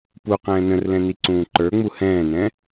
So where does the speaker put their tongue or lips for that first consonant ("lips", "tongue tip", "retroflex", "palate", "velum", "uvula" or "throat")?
lips